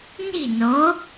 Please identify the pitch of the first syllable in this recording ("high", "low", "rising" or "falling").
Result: falling